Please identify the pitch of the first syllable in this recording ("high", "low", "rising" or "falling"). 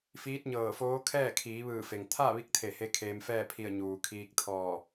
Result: rising